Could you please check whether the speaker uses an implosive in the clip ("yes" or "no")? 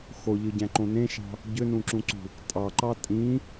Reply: no